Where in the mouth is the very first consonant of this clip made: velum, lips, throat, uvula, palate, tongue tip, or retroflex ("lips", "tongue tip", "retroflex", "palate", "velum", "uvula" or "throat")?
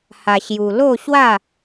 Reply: throat